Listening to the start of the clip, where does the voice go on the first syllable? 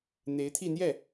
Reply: rising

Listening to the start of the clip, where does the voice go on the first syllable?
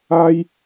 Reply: high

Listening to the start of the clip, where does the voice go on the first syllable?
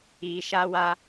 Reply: low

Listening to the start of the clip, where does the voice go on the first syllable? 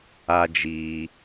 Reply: high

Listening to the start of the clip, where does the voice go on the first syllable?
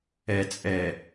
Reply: low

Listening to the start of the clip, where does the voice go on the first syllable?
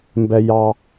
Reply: high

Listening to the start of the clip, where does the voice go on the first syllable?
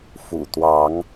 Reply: low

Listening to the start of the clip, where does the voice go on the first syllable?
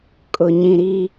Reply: low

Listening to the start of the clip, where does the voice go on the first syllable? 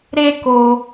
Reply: high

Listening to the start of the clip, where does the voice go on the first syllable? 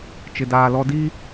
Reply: low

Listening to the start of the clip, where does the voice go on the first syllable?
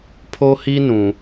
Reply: high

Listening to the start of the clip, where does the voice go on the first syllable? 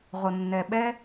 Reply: low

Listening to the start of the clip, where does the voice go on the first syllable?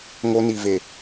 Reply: high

